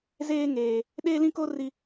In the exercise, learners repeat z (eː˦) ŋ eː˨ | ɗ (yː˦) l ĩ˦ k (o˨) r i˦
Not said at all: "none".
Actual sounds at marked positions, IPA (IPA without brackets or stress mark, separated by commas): eː˦, eː˦, o˦